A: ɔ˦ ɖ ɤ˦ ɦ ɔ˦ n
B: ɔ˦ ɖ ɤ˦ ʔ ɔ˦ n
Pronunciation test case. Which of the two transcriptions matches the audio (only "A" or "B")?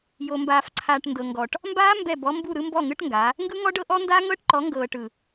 B